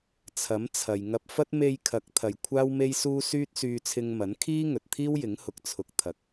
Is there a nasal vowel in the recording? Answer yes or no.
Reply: no